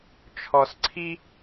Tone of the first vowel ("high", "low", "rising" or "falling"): low